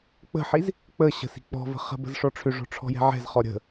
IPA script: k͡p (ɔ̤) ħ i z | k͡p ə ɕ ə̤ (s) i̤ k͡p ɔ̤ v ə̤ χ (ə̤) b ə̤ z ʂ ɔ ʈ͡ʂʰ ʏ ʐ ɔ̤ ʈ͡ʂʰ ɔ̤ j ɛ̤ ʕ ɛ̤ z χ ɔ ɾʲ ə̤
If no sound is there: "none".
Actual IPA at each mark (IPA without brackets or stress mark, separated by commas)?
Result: ə̤, s, ə̤